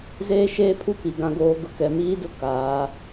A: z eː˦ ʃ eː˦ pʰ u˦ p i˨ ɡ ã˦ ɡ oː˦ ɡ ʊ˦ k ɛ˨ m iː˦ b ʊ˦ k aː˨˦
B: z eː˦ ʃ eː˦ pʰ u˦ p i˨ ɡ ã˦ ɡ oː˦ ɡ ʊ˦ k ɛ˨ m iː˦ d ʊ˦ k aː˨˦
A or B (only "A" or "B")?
B